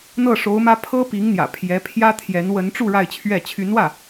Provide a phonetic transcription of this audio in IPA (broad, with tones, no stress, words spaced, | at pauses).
n̪ɤ˥˩ʂo˧˥ʊ̯mä˥ pʰɤ˥pi˧˥ŋn̪jä̰˨˩ pʰjɛ˧˥pʰjä˥t̪ʰjɛ˧˥n wə˧˥nʈ͡ʂu˥˧ ɻa˥˧ɪ̯t͡ɕʰɥɛ˥˩ t͡ɕʰy˧˥nwä˥˩